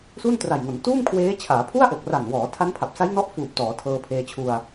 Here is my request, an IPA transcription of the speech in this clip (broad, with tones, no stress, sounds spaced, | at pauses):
s u˥˩ n t r a˨˩ j ŋ o˩˦ n t uː˥˩ m kʰ w eː˦˥ t͡ɕʰ aː˩˦ pʰ u˥˩ a̯ ʔ o˨˩ k̚ r a˨˩ n w ɔː˩˦ tʰ a˦˥ n pʰ a˨˩ p̚ s a˦˥ j n ɔ˥˩ ʔ f uː˨˩ p̚ t ɔː˩˦ tʰ ɤː˧ pʰ eː˧ t͡ɕʰ u˧ a̯